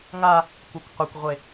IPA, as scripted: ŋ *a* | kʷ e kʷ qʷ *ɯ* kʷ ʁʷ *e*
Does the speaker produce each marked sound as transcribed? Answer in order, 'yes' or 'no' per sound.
yes, yes, yes

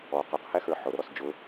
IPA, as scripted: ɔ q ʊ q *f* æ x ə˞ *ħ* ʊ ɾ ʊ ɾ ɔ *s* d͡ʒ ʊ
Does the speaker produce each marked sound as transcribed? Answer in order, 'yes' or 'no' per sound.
no, yes, yes

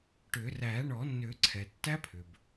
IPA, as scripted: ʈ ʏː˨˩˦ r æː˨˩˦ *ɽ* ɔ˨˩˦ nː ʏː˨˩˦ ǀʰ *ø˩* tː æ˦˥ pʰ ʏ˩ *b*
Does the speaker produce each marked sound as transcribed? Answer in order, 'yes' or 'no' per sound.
no, no, yes

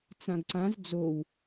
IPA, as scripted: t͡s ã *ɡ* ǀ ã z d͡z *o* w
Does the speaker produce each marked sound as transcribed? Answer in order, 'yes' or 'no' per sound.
yes, yes

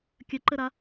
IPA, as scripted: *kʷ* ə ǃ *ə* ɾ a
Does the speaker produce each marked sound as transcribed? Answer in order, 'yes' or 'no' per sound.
no, yes

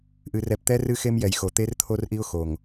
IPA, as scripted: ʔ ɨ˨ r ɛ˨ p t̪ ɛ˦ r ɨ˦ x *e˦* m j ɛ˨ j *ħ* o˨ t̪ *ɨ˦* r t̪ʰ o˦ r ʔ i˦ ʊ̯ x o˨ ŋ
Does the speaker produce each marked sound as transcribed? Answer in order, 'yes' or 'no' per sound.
yes, no, no

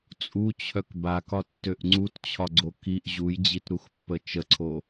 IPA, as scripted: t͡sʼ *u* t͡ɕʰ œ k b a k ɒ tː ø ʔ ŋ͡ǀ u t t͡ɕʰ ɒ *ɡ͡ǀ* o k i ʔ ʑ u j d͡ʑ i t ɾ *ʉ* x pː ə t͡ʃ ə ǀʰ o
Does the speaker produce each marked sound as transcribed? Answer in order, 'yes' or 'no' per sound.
yes, yes, no

